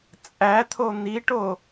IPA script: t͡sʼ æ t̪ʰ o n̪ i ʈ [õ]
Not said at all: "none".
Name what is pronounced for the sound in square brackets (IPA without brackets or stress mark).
o